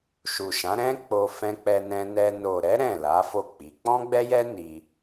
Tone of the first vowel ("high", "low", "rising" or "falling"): low